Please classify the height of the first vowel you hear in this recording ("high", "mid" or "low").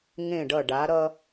mid